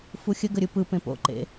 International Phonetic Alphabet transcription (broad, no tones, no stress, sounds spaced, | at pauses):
f u xʲ ə ɡ ə ɾʲ ɯ p ɯ p ẽ p o̰ ǃ ḛ